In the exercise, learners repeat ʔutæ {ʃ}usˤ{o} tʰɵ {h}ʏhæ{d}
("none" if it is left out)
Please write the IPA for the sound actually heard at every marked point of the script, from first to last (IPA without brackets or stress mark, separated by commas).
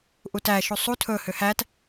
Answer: ʃ, u, h, t